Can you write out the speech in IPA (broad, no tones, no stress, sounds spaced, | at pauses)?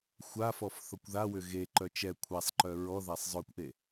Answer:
xʷ a f ɔ f θ ɔ kʷ ð a w ʏ ɣ e ǃ œ t͡ʃ ɛ kʷʰ a sˤ ǃ œ ɹ ɔ ð a sˤ zˤ œ kʷ ʔ e